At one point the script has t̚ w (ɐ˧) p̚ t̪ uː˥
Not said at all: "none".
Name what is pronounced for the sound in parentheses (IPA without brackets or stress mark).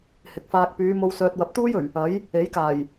ɐ˨˥